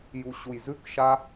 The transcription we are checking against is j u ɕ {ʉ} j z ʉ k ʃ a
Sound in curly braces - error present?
yes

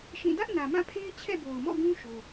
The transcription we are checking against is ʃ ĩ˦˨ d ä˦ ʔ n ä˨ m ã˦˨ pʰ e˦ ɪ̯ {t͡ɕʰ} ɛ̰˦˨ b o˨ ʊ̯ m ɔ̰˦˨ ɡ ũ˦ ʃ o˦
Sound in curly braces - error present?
no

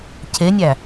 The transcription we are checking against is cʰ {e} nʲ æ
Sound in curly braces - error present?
no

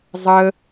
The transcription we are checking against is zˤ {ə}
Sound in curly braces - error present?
no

